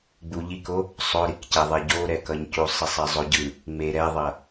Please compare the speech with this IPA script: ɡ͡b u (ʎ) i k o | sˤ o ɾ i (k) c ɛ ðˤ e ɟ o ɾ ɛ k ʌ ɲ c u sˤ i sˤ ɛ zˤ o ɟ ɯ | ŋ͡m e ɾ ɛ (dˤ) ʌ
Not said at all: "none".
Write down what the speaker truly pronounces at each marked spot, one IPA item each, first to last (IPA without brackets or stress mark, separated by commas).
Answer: ʎ, k, ðˤ